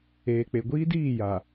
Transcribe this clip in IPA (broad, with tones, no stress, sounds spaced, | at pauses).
eː˨ k͡p e˨ ɡʷ iː˦ d iː˦˨ j a˨